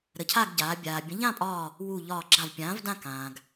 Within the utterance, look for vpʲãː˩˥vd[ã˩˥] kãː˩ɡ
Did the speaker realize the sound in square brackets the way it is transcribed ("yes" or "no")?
no